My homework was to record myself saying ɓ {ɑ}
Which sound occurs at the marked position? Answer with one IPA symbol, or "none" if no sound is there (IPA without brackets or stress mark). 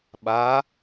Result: a